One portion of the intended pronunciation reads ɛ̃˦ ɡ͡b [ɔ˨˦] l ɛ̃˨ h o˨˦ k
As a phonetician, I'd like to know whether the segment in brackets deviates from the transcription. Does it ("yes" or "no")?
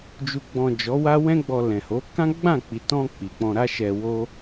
yes